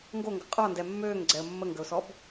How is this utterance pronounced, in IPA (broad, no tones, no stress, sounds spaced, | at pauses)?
ŋ ɡ o ŋ ɡ ə qʼ ɔ n d ɛ mː øː ŋ ɡ͡ǀ ɛ ə̯ mː ə ŋ ɡ ə ʊ̯ s ɔ b